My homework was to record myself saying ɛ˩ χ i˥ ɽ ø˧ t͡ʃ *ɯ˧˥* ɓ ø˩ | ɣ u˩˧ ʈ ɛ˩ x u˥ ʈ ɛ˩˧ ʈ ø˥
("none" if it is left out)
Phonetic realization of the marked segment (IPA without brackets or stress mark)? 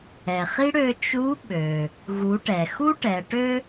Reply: u˧˥